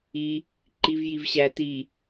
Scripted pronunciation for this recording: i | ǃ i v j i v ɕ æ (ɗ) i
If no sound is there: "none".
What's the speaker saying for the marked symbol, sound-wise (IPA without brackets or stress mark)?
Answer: t